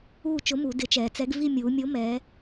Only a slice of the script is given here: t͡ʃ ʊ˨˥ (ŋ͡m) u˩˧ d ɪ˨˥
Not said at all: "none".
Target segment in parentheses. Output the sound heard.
m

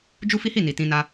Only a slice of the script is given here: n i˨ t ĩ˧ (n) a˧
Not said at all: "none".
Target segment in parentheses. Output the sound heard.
n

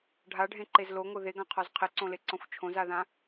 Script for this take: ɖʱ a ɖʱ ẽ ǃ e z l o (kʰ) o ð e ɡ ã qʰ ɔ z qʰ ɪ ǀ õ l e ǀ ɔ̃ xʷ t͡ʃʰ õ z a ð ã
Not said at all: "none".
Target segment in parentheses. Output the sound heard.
ŋ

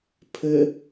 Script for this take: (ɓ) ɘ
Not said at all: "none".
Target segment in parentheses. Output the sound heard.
pʰ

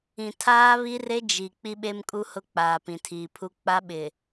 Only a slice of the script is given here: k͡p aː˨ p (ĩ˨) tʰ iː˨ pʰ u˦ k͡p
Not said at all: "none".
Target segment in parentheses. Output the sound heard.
ĩ˨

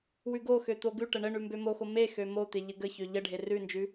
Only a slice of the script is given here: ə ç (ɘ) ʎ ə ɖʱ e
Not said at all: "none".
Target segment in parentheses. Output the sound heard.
ø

